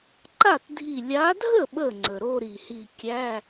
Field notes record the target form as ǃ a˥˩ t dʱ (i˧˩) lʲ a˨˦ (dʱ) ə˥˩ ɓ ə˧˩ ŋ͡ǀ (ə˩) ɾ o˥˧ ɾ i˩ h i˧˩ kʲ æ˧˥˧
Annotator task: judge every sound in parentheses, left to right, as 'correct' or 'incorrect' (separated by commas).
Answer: correct, correct, correct